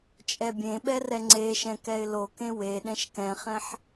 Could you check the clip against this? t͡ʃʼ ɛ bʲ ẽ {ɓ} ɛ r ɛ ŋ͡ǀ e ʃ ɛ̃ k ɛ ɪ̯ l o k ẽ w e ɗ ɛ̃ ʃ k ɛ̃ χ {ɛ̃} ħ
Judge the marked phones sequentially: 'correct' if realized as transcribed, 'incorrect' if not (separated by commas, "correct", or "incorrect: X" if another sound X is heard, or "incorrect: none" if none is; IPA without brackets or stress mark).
correct, correct